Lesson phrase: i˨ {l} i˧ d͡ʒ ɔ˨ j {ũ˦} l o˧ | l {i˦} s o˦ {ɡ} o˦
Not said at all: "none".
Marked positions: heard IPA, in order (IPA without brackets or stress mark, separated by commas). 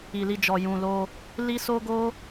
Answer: l, ũ˨, i˦, ɡ